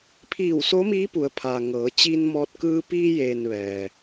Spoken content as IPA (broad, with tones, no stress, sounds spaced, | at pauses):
pʰ iː˧˩ w s o˧˥ m iː˧˥ p u˩˧ ə̯ pʰ aː˩ ŋ ɤː˩˧ t͡ɕ iː˧ n m ɔː˧ t̚ k ɯː˧ p iː˧ j eː˩ n ʋ ɛː˩